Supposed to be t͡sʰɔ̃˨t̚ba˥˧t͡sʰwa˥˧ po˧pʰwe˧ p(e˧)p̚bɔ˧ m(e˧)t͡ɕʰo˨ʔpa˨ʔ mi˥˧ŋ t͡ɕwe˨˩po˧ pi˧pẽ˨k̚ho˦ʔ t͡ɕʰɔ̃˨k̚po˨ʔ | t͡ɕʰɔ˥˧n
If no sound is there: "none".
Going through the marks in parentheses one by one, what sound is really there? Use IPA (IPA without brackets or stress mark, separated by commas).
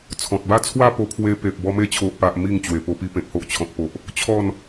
e˨, e˧